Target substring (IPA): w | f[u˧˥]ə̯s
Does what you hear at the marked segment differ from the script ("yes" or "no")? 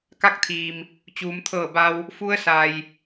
no